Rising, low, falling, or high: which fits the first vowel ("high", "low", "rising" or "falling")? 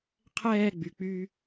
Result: falling